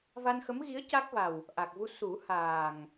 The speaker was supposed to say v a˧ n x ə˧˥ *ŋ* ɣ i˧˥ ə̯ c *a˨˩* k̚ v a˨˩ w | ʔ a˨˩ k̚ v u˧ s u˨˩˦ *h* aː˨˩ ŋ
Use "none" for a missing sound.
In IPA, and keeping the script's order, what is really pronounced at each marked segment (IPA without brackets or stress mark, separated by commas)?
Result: m, a˦˥, h